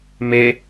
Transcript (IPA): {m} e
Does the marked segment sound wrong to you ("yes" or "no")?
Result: no